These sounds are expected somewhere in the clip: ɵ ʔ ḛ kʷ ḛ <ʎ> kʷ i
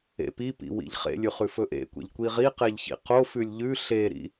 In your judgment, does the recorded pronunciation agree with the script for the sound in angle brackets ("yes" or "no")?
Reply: yes